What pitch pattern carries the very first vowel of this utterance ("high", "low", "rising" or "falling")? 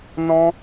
high